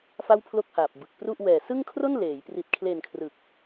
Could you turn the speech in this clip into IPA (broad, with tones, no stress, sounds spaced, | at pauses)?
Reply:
f a˥˩ w pʰ l o˥˩ k̚ h aː˨˩ p̚ b ɯ˨˩ k̚ p r u˥˩ ʔ w ɛː˨˩ s ɯ˥˩ ŋ kʰ r o˥˩ n l eː˩˦ j p r i˨˩ t̚ kʰ l eː˨˩ n kʰ r ɯ˨˩ k̚